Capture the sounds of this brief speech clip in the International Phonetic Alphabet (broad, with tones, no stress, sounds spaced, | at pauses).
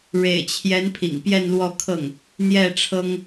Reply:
ɻ ḛ˨˩ ɪ̯ t͡ɕʰ j ɛ˧˥ n pʰ ḭ˨˩ ŋ p j ɛ˥˧ n l w ɔ˥˧ kʰ ɤ˥˩ ŋ | n̪ j ɛ˥˩ ʈ͡ʂʰ ɤ˥ ŋ